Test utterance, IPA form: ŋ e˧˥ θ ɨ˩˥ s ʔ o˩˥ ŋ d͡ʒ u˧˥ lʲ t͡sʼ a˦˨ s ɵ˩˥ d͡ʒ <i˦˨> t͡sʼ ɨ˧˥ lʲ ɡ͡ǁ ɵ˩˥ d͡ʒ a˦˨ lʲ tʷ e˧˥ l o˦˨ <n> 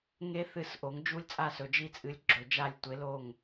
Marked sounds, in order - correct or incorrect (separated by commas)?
correct, incorrect